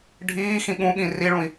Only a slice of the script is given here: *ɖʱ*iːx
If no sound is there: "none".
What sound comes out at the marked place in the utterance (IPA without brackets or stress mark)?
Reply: ɖʱ